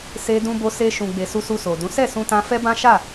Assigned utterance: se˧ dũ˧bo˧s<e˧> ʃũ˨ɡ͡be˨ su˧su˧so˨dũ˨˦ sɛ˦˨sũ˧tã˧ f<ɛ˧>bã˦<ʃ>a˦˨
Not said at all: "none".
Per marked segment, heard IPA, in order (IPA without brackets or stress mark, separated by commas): e˧, ɛ˦, ʃ